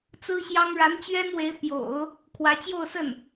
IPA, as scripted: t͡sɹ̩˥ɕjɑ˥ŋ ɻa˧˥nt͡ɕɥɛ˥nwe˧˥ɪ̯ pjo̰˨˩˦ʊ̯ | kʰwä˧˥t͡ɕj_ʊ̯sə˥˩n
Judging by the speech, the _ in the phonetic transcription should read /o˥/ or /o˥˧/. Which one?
o˥˧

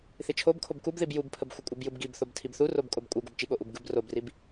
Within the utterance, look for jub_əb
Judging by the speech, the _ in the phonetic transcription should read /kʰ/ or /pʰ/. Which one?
pʰ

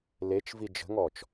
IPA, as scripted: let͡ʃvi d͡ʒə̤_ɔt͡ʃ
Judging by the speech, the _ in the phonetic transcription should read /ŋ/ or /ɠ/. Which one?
ŋ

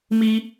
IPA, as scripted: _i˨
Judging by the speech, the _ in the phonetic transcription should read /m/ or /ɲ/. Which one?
m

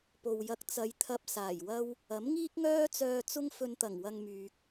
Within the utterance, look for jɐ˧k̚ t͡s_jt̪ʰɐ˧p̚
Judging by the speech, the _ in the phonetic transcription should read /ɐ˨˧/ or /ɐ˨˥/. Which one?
ɐ˨˧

